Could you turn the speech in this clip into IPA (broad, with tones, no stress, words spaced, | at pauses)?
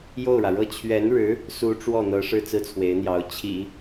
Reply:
jo˥˩ʊ̯ɻä˩ɻɤ˥˩ t͡ɕʰɥɛ˧˥nɻɻ̩˧˥ | su˧˥ ʈ͡ʂwɔ˥˩n̪ɤ˧˥ ʂɻ̩˥˧t͡sɹ̩˥˩t͡sʰwe˧˥ɪ̯n̪jɑ˧˥ʊ̯ t͡ɕʰḭ˨˩˦